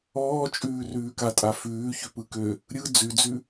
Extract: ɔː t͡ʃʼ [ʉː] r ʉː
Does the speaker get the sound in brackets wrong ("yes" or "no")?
no